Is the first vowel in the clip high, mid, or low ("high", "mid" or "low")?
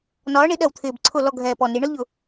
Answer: low